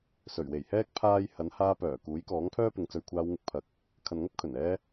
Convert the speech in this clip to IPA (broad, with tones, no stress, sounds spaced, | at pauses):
s ɵ˨˩ ɥ w e˨˩ j h ɛː˥ k̚ pʰ aː˥ j h ɐ˨˥ n h aː˧ p œː˨˩ k uː˨˥ j k ɔː˨˥ ŋ pʰ œː˥ p ɪ˨˧ ŋ t͡s ɵ˨˧ ɥ kʷʰ aː˧ w ŋ ɪ˧ k̚ pʰ ɐ˨˥ k̚ | kʰ ɐ˨ n ŋ ɐ˥ p̚ kʰ ɵ˨˩ n ɛː˧